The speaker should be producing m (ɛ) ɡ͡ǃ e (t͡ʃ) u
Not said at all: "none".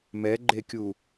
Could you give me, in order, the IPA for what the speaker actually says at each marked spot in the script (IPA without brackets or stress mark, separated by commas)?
ɛ, kʲ